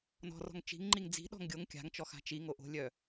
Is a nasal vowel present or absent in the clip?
absent